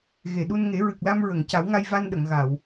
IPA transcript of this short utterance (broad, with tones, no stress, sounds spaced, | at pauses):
ɣ e˨˩˨ ɗ u˧ n ŋ e˨˩˦ ɹ ɨ˨˩ k̚ l a˧ m ɹ ə˨˩˨ ŋ c a˨˩˦ w ŋ a˧ j v a˧ n ɗ ə˨˩˨ ŋ ɣ a˨˩˨ w